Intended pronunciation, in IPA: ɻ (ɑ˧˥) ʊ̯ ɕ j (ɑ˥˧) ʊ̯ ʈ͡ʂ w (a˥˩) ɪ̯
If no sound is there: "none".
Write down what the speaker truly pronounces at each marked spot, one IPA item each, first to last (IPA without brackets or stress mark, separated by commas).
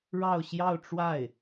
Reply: ɑ˥˧, ɑ˥˧, a˥˩